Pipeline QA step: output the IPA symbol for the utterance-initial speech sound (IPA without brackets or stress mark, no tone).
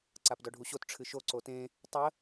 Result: ǀ